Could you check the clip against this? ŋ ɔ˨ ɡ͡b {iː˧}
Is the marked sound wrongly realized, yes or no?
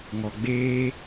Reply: yes